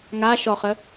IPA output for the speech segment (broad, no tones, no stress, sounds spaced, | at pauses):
ŋ a ʃ ɔ χ ə